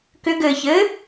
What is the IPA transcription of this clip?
k ʏ ɡ ɘː ç ɘː

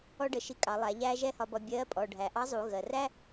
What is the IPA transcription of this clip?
ɔ˥ ɖ ə˩˧ ʃ i˧ kʼ ɑ˩˧ lˠ æ˩˧ ʎ æː˥ ʒ ɛ˥ h ɒ˧ b ɒ˧ bʲ ɜ˧˥ pʼ ɔ˩ ɖʱ æ˩ ʔ ɑ˧˥ zˤ u˩˧ ɣ ɜ˩ r æ˥

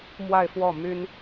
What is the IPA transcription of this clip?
m w a˥˧ ɪ̯ f w ɔ˥˩ m y˥ n

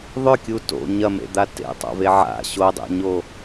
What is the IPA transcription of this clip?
ðˤ ʏ kʲ u t o̰ ɲ ɐ m ḛ d̪ a t ḛ tˤ a̰ v e ʕ a̰ ɕ o dˤ ḛ ɲ o

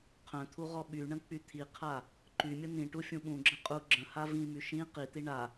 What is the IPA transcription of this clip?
qʰ œ̃ t̪ʰ u ʁ ɔ ɓ y ɳ ə̃ k͡p y t̪ʰ i qʰ a | ǃ y mʲ ə n̪ ĩ ʈ u fʲ ũ ɓ ũ ɡ͡ǁ ə̃ qʼ u ɡ͡ǁ ə̃ h a v ĩ m y ʃ ĩ q i t̪ i ɳ a

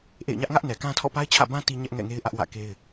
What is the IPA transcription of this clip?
ʔ ḛ˦˨ ɪ̯ ɲ ä˦ ʔ ŋ ä˦ ʔ n ɛ˨ k ã˦ tʰ ɔ̰˦˨ p a˦ ɪ̯ t͡ɕʰ ä̰˦˨ b ã˦ t i˦ ɲ ɛ˦ ʔ ŋ ɛ̰˦˨ ŋ e˦ ɪ̯ ʔ ä˦ ʔ w ä̰˦˨ k e˦ ɪ̯

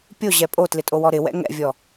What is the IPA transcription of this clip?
pʲ o ʑ ɛ pʼ o t l ɪ tʼ o w ɔ ɾ ɪ w ɛ̰ ŋ ɛ̰ vʲ ɔ

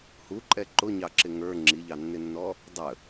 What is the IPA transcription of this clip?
h u ǃʼ ɛ ǃ ʊ ɲ ɑ ǁ ɪ ŋ ə˞ ŋ͡ǁ i ʎ ɑ nː ɪ nː ɔ | dˤ ə

